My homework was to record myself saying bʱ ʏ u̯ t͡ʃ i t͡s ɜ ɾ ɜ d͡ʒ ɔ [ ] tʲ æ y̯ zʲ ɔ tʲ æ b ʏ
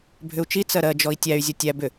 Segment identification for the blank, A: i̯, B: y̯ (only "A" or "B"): A